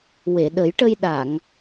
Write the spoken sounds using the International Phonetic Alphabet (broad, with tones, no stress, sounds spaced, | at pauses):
w e˨˩˨ ɗ ə˨˩˦ j ʈ ə˧ j ɗ a˨˩˨ ŋ